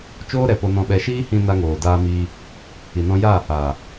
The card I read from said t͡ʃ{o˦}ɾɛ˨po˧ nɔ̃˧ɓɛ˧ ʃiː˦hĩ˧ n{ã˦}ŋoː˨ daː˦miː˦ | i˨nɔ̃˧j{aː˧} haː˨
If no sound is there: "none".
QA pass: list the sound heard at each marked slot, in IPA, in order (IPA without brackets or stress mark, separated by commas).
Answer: oː˦, a˦, aː˦˨